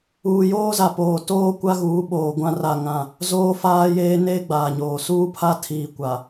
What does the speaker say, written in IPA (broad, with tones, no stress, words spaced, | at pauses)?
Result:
uː˨joː˦za˨poː˨ toː˦ kʷa˦ɣuː˨˦ɓoː˨ ɡʷã˦ra˦˨ŋã˦˨ | zoː˦faː˦jeː˦ neː˦ɡ͡baː˨ɲoː˨ suː˦pʰa˦tʰiː˨ kʷa˨